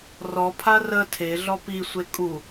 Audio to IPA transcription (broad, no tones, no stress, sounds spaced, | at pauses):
r ɔ pʰ a r ə tʰ e ɮ ɔ p i sʷ e kʼ u